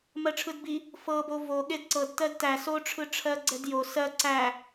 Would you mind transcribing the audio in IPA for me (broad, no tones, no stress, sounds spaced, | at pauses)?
m ɜ ʈ͡ʂʰ ɯ d b i | f ɤ b o v o ɠ e d ǀ ɤ d t ɜ d t æ s o ʈ͡ʂʰ ɯ ʈ͡ʂʰ ɜ ɡ͡ǀ ɛ d j o s ɜ ǀ æ